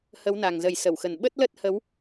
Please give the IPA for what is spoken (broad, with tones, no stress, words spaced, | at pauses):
hə˨˦wna˨˩ŋzə˨˩j sə˧˩wxə˨˩n ɓə˦˥t̚lə˦˥t̚ hə˨˦w